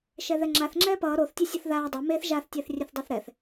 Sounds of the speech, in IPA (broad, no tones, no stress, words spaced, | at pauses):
ʃɛðɛŋ͡ǁaθ ŋ͡ǁɛːpʌː ɾoθ tʲɛsʲʌθðaː dˤo meθ ʒaθ tʲɛːθrʲɛθdˤɛθɾɛθ